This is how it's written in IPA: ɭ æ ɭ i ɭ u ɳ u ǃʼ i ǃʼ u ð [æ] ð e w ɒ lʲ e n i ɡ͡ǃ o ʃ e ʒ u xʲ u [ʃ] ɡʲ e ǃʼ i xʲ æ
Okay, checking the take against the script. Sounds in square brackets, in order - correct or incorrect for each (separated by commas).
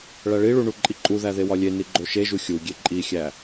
correct, incorrect